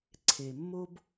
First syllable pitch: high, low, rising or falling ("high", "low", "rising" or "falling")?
low